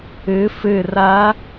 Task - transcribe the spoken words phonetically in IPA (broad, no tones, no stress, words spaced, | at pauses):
ɨ fɨ rɐ